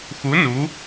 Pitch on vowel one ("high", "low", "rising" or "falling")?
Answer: rising